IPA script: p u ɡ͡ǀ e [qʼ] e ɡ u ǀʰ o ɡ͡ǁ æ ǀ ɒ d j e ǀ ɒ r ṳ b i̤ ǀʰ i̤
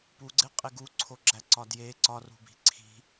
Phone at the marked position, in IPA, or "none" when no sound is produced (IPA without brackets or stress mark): qʼ